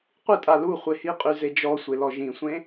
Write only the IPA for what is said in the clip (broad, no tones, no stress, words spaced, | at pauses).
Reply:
qʷɨtʼa lu χʷehiqʼy zed͡ʒɔsʷe lɔʒĩsʷẽ